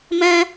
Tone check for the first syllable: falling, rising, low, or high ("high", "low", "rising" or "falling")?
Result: high